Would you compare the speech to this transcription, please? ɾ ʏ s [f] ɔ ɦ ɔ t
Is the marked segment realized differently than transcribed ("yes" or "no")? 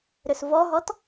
yes